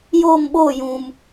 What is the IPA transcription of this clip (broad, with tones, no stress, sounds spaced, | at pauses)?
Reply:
j oː˦˨ m ɓ oː˦˨ j ũ˨ m